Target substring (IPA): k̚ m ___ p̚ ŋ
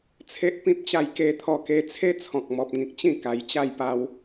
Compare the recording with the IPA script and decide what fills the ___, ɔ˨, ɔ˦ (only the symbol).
ɔ˨